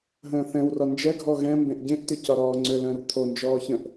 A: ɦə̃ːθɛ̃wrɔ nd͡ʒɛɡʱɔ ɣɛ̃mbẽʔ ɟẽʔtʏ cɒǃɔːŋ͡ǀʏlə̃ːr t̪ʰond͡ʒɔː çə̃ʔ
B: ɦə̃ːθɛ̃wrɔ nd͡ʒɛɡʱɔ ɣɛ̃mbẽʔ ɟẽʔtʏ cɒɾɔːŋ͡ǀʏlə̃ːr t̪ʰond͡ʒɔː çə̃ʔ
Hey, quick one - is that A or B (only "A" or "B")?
B